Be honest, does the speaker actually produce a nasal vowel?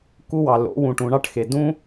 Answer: yes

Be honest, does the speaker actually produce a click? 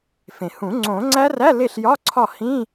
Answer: yes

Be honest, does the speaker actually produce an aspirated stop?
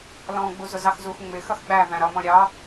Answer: no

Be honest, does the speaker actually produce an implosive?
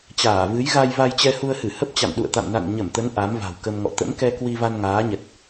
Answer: yes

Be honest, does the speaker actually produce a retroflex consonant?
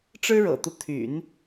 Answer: yes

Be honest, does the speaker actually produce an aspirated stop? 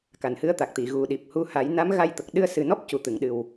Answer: no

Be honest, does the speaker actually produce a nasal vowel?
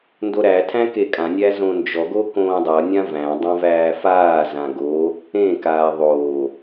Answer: yes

